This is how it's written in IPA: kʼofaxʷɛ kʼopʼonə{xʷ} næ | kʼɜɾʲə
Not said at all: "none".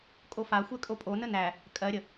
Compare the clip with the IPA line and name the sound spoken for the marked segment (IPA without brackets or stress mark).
none